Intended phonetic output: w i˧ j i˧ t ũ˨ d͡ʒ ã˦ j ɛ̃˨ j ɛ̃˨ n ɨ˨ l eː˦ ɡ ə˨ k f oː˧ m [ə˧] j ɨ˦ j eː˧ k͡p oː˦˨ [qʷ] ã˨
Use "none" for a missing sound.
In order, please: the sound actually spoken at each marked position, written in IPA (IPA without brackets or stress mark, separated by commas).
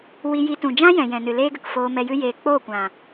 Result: ɛ˧, kʷ